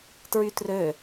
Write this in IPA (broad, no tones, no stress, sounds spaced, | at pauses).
t ɹ y t r ø